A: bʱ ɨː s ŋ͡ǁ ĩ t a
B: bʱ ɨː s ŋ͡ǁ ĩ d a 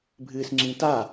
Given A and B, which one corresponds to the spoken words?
A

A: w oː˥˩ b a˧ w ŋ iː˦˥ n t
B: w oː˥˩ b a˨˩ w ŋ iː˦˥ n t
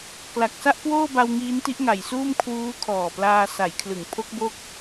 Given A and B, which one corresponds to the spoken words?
A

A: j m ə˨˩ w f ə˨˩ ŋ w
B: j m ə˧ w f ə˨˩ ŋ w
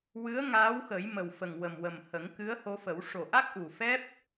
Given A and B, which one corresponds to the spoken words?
A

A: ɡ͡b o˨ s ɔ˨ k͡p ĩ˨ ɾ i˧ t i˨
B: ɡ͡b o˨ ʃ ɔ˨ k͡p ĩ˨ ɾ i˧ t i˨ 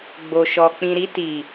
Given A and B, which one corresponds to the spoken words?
B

